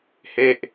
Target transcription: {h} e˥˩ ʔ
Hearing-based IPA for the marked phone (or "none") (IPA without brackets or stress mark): h